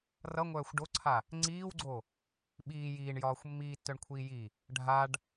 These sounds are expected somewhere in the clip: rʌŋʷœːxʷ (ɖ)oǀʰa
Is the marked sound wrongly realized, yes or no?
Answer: no